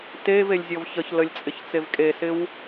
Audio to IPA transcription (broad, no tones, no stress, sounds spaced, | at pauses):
t e v e lʲ zʲ ɔ v ç ə ç l ə lʲ t͡sʼ ɪ ç t͡s e v kʼ e s ɪ w